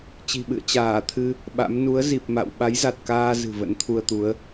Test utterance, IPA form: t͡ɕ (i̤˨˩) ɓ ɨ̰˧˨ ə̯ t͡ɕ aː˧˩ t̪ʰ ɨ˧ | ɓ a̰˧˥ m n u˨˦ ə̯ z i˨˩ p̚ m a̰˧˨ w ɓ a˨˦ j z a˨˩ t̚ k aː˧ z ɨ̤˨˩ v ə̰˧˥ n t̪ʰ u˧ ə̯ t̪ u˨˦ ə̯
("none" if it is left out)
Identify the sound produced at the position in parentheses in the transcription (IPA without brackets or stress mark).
i̤˨˩